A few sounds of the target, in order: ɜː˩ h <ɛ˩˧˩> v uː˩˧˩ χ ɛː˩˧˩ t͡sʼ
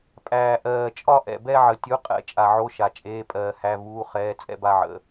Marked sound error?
yes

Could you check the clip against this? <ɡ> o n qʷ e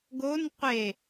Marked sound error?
no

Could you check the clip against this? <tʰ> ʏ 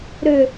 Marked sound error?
yes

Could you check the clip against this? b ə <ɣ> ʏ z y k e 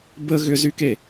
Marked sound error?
no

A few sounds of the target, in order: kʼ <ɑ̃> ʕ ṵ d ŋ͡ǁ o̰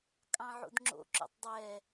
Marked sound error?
no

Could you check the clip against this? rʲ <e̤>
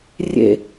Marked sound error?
yes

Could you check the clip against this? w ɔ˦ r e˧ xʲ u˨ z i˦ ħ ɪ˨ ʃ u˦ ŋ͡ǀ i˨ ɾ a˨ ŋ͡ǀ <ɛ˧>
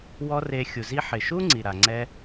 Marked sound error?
no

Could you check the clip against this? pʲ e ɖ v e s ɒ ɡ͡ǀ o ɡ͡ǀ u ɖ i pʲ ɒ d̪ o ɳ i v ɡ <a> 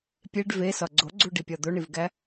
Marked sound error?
yes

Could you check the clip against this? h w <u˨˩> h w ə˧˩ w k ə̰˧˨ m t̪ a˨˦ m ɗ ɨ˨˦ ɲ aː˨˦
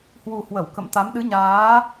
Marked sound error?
no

